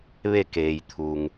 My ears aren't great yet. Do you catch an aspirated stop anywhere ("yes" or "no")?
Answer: yes